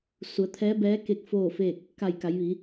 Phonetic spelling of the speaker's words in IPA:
s u˩˧ ə̯ t̪ʰ ɛː˧˥ b ɛː˧˥ k e˧ k̚ f oː˥˨ f eː˥˨ k̚ | k a˧˩ j k a˩˧ j ʋ iː˩˧

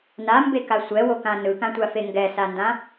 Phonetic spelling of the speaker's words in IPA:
n a m b e k a sʷ ɛ w o k ã n ɯ k ã tʷ a f e ŋ ɡ ɛ s a n d ã

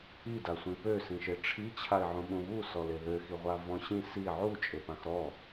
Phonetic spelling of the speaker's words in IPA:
i d a sʷ ĩ p ø s ĩ ʃ e ʈ͡ʂʰ i t͡ɕʰ a ɪ̯ ʕ ũ ɓ ũ β u s ɔ l e ð ø x i ʁʷ a v ɔ̃ ɕ ĩ s i ʕ u t͡ʃʼ e p ã x ɾ ɔ

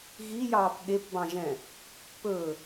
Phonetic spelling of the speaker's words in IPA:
ɣ i j ɑː p ɠ e p b ɑ̃ ʒ ɛ̃ | p ɵ

